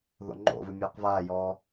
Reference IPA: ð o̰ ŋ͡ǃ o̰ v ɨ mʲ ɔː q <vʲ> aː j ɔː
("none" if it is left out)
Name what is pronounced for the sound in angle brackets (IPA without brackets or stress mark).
v